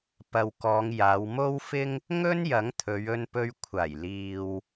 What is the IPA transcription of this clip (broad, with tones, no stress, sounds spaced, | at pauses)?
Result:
p ɐ˨ w k ɔː˨˧ ŋ j aː˨˧ w m o˥ w f ɪ˥ ŋ | ŋ ɵ˥ n j ɐ˨˥ ŋ t̪ʰ ɵ˨˧ ɥ ɵ˧ n p ɵ˧ ɥ kʷʰ aː˨˩ j l iː˨ w